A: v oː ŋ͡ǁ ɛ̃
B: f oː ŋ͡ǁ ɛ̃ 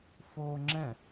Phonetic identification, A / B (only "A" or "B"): B